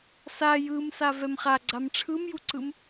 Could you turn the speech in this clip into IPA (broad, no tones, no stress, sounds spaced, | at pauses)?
s a j ɯ m s a v ɛ m χ a ɡ͡ǀ a m ʈ͡ʂʰ ɯ m j u ǀ ɯ m